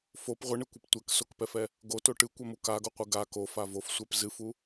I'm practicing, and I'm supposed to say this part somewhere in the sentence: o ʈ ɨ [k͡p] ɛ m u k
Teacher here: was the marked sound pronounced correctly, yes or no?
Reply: no